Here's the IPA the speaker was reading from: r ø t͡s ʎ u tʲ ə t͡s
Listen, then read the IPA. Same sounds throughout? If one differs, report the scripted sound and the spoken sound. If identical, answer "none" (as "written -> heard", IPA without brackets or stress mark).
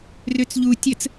none